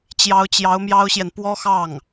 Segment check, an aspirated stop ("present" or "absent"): absent